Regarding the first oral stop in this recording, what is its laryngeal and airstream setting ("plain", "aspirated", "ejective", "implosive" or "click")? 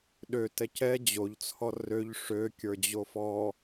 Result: implosive